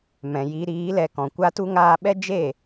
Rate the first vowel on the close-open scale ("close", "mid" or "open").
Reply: mid